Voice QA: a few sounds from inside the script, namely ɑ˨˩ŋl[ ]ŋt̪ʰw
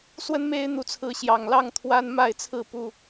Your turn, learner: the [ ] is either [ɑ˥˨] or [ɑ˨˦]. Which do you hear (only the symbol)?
ɑ˥˨